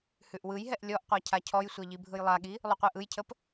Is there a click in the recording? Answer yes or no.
no